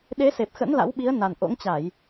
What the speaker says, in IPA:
ɗ e˨˦ s e˨˩ p̚ x ə̰˧˥ n l a̰˧˥ w ɓ i˨˦ ə̯ n a˨˩ n ʔ o̰˧˥ ŋ t͡ɕ a˧˩˨ j

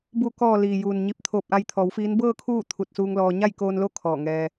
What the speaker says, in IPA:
b u˩ k ɔː˩ l iː˩ j uː˩ n ɲ i˧˩ p̚ t̪ʰ oː˧˩ p̚ ʔ a˧ j t̪ʰ ɔː˩˧ w f iː˧˥ n b ɤː˥˨ kʰ uː˥˨ t̪ʰ u˧˩ t̚ s uː˧ ŋ l ɔː˧ ɲ a˥˨ j k oː˧ n l o˥˨ kʰ ɔː˧˩ ŋ ɛː˧

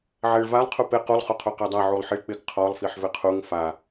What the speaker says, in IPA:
ʕ ɛ ɭ v a lˠ qʰ u p e q u lˠ χ o qʰ o q ɛ dˤ a ʕ u lˠ ħ i ɭ k͡p ɪ ɡ qʰ ɔ lˠ f i ħ v ɪ qʰ u ŋ f a

